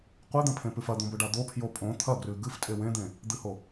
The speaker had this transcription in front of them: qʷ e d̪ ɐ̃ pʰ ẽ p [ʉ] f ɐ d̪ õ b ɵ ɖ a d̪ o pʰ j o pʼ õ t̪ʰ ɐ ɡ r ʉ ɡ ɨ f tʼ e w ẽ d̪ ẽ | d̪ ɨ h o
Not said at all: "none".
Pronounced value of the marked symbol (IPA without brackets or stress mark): ʉ